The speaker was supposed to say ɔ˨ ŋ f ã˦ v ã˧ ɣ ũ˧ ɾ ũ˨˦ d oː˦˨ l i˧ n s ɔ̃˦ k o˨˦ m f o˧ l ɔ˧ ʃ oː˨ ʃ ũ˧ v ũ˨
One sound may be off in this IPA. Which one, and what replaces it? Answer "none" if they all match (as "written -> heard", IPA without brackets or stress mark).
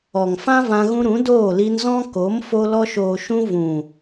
s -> z